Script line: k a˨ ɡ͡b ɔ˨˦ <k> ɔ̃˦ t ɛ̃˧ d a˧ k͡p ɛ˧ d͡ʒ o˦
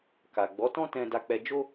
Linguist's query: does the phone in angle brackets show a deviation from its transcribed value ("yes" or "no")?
yes